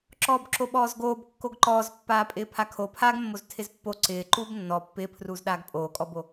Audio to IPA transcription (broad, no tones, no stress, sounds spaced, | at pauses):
ǁ ɔː b ǁ o ɓ ɔː z ɡ oː b kː o ɡ ǃ ɔː z pː aː pʼ ɪː pʰ a kʰ o pʰ aː ɡ mː o z tʰ ɪ z pː o ǀ ɪː ǃ uː b nː ɔ pː ɪː pʰ r uː z ɗ aː ɡ pʼ oː kʼ ɔ b o